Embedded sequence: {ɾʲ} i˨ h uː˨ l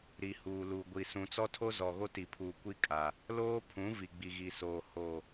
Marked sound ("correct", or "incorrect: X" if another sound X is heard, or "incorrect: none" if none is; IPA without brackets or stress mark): incorrect: ɾ